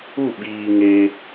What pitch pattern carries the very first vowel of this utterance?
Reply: falling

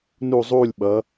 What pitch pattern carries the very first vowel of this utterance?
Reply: falling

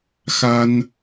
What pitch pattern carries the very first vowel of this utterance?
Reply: high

